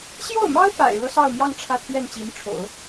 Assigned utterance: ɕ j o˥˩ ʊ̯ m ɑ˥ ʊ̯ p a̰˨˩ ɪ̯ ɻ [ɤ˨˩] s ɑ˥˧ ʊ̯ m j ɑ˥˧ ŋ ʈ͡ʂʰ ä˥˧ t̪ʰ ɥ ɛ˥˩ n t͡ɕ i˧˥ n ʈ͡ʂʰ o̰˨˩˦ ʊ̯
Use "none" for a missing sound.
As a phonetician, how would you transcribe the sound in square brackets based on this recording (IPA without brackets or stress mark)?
ɤ˥